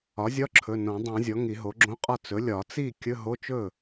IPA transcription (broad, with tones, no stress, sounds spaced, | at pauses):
ɒ˩˥ zʲ ɒ˧˥˧ ǁʰ ɵ˩˧˩ n õ˨˩˦ dˤ ɛ̃˨˩˦ zʲ ɔ˩˥ ŋ i˨˩˦ ɦ o˩˥ ɡ͡ǁ õ˧˥˧ qʼ ɒ˥˩ t͡s ɵ˩˥ lʲ ɒ˨˩˦ t͡s i˥˩ kʲ ɵ˧˥˧ ɦ o˧˥˧ t͡ʃ ɵ˥˩